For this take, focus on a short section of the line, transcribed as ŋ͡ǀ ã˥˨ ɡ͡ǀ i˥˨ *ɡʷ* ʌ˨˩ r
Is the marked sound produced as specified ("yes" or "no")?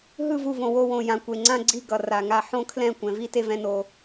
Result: no